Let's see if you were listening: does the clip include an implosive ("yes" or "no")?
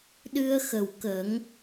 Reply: yes